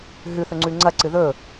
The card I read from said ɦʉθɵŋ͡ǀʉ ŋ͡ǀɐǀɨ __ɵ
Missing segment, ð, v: ð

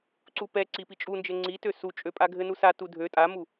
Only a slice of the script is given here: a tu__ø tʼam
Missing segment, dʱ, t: dʱ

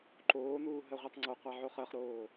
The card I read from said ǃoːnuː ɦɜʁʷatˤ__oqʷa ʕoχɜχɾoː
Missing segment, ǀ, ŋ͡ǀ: ŋ͡ǀ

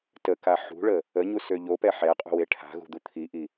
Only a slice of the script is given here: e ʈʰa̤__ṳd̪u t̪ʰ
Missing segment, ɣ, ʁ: ɣ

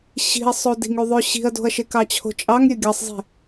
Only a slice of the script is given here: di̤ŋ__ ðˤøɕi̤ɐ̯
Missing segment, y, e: y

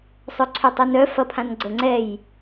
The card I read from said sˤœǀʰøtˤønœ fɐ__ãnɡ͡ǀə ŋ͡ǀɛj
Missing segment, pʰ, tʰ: pʰ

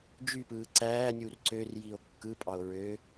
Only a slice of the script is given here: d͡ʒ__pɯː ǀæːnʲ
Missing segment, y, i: y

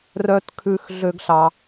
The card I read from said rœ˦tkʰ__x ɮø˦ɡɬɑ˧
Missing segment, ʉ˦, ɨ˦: ʉ˦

